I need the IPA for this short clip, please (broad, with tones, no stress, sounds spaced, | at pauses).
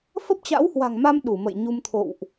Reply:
f ə˦˥ p̚ t͡ɕ a̰˧˥ w h w a̤˨˩ ŋ m a˧ m ɗ u˧˩ m ə̰˧˨ j ɲ u˧ m t̪ʰ o̰˧˨ w ʔ